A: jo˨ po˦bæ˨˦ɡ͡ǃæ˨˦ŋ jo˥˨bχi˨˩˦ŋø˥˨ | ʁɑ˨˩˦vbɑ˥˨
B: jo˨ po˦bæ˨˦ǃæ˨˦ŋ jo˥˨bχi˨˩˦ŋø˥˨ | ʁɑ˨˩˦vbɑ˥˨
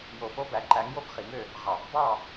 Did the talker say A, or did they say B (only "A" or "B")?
B